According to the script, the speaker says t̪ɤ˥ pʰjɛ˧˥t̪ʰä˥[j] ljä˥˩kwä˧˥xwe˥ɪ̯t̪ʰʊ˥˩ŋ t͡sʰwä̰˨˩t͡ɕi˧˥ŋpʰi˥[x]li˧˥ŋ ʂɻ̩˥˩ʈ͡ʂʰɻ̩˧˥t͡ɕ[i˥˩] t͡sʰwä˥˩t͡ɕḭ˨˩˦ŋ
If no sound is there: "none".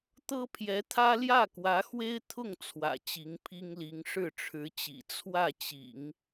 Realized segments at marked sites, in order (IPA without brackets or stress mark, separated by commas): none, ŋ, ḭ˨˩